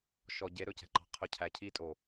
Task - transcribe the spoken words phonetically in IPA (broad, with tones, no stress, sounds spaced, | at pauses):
ʃ ɔ˨ ɟ e˨˦ ɾ ɵ˧ c ɛ̤˧ ǃ ɑ̤˧ qʰ œ˧ cʰ æ˨ cʰ iː˧ tʼ o˨